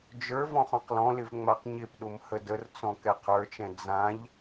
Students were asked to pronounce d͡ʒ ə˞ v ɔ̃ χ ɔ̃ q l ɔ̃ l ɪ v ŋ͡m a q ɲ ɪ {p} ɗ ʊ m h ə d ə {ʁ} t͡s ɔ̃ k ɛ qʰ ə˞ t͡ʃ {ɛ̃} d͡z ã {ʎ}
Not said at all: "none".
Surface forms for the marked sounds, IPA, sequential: p, r, ɛ̃, ʎ

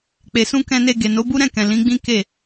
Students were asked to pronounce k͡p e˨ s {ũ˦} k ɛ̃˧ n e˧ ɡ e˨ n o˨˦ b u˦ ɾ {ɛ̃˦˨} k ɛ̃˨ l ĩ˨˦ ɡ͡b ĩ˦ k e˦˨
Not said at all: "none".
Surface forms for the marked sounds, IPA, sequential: ũ˧, ɛ̃˦˨

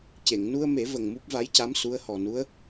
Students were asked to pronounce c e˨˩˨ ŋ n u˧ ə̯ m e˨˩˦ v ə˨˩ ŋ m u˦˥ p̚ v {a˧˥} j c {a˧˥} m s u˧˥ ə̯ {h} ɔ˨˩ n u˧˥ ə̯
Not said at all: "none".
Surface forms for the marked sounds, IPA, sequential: a˧˥, a˧˥, h

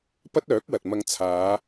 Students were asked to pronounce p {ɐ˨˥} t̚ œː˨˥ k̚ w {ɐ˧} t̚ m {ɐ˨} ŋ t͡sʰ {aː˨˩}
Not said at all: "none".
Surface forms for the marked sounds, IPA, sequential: ɐ˥, ɐ˨, ɐ˧, aː˨˧

